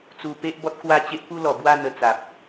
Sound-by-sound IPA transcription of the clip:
t͡su˧pe˦ʔ bɔ˦t̚kwa˦ t͡ɕe˦ʔpu˦lɔ˨˩bwa˥˧ n̪ə˧t͡sa˨p̚

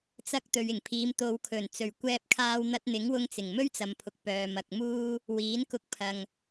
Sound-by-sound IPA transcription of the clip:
t͡sɐ˧k̚ t̪ɵ˨ɥɪ˨˩ŋpʰiː˨˧m t̪o˨wkʰɵ˨˩n t͡sɵ˨˩ɥkʷɛː˧p̚kʰaː˧w n̪ɐ˧t̚n̪ɪ˨˥ŋwʊ˧ŋ t͡sɪ˨˩ŋmɵ˥ɥt͡sɐ˨mpʰʊ˨k̚ pœː˨mɐ˨k̚muː˥ | wiː˨˥nkʊ˧k̚ pʰɐ˨ŋ

